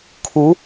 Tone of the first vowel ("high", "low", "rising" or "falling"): rising